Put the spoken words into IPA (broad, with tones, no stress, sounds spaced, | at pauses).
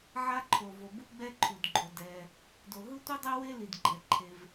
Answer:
ʕ a˥ ǃʰ o˩ v o˩ b u˥ ɡ͡b ɛ˥ ǃʰ u˩ d ɡ͡ǃ o˩ d ɛ˩ | d o˩ ɦ ɯ˥ tʷ i˥ dˤ e˥ w e˥ l i˩ d ɡ͡ǃ ɛ˩ ǃʰ e˩ v